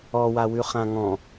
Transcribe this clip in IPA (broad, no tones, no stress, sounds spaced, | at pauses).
ɔ w a w ʉ χ ã ŋ ɔ̃